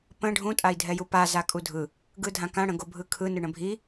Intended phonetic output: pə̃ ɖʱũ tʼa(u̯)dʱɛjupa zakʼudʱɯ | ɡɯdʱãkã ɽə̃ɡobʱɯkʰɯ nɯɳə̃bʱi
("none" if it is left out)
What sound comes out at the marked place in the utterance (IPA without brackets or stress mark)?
i̯